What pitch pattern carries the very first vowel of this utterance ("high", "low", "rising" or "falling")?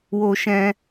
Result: high